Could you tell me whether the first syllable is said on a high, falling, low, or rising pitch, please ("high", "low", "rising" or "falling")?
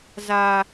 high